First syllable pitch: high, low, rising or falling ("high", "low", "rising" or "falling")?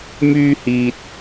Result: high